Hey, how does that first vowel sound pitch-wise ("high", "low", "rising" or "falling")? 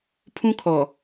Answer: high